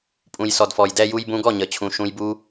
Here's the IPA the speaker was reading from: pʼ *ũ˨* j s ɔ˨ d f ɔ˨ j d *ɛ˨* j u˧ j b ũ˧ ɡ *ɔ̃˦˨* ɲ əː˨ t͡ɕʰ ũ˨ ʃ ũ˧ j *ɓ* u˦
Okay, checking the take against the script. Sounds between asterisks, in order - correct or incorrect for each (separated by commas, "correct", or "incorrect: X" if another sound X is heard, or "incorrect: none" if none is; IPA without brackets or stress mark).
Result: correct, incorrect: ɛ˧, incorrect: ɔ˦˨, incorrect: b